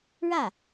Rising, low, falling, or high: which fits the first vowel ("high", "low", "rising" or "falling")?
falling